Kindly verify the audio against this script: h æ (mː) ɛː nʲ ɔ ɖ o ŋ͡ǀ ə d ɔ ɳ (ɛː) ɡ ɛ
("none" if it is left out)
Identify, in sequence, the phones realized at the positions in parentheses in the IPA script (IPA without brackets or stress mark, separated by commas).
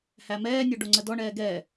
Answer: m, ɛː